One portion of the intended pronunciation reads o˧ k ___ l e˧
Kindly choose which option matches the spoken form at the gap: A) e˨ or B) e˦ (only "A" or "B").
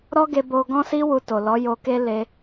B